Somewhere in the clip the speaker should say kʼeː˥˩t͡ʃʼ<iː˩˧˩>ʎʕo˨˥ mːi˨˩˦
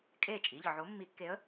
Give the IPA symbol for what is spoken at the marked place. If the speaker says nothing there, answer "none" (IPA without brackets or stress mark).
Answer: iː˩˧˩